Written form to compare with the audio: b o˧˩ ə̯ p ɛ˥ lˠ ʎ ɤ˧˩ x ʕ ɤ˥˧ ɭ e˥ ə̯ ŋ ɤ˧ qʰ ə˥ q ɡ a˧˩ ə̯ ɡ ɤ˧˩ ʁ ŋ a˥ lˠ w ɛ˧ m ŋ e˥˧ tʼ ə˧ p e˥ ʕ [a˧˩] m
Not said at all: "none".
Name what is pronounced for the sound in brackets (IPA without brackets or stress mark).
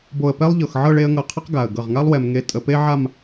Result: a˥˧